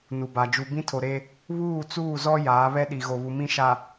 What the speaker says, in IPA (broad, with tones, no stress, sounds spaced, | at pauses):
n u˨ b a˨ d͡ʒ u˨ b ĩ˦ tʰ o˨ ɾ e˦ | β uː˦˨ t͡s uː˦˨ z ɔ˦ j aː˨˦ β ɛ˦ ɗ i˨ ɣ o˨ β u˨ m ĩ˦ ʃ a˨